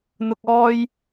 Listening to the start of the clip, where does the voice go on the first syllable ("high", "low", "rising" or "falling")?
high